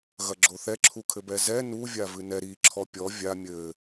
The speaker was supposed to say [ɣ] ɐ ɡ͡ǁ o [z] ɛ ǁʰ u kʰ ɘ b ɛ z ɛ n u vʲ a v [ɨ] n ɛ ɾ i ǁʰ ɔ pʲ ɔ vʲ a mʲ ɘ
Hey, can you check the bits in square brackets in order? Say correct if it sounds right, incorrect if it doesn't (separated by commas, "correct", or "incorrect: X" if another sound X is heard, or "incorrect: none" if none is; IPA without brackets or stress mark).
correct, incorrect: θ, correct